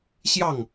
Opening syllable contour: falling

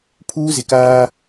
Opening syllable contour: high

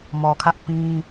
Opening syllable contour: low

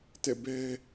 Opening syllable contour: falling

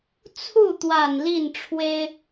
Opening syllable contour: falling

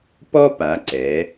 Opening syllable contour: high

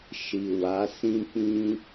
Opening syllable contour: low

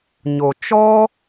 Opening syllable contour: low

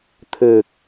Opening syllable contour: low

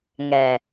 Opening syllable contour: low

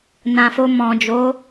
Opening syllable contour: low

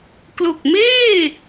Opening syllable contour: low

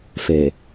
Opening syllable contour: low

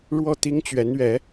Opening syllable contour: falling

